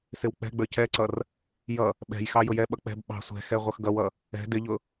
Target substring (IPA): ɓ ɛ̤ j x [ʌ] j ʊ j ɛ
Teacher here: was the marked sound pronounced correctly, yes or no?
no